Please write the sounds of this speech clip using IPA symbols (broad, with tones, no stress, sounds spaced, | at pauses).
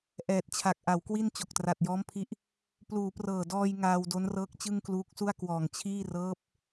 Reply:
ʔ ɛː˨˩ t̚ t͡ɕʰ a˨˩ k̚ ʔ a˩˦ w k w i˥˩ n t͡ɕ o˨˩ k̚ t r a˨˩ t̚ j ɔː˦˥ m pʰ i˦˥ ʔ | p l uː˩˦ p r ɤː˨˩ d ɔː˧ j ŋ aː˧ w d o˦˥ n r ɤː˦˥ k̚ t͡ɕ ɯ˥˩ ŋ k l uː˦˥ k̚ s u˥˩ a̯ k w ɔː˨˩ ŋ t͡ɕʰ iː˥˩ r ɤː˦˥ p̚